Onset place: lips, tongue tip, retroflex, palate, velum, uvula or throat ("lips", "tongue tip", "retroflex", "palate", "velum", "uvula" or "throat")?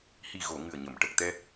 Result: throat